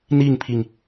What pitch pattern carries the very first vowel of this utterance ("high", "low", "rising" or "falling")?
falling